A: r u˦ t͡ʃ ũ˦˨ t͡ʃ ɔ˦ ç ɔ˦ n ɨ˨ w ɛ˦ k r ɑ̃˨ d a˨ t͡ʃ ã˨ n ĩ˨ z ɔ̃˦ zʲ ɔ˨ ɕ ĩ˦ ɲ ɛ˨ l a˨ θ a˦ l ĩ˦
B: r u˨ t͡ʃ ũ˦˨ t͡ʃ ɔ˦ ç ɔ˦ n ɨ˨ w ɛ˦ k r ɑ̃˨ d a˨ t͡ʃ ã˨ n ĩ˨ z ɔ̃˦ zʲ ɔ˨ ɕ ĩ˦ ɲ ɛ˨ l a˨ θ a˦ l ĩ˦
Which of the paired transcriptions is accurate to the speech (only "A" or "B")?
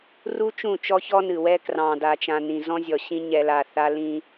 A